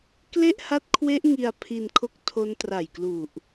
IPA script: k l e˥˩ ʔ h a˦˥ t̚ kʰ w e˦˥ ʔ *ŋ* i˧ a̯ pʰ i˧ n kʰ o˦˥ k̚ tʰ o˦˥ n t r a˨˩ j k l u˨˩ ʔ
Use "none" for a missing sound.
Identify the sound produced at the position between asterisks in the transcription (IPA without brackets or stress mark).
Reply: ŋ